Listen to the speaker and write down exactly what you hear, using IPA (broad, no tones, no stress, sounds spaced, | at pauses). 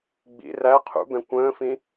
ɡ͡b ḭ r æ qʰ ṵ b ɛ̃ kʷ ə̃ː f ĩ